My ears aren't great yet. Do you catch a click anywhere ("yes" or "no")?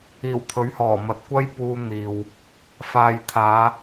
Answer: no